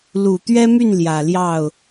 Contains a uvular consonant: no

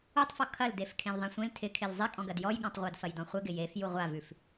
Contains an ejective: yes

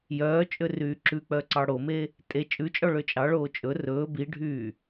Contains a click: yes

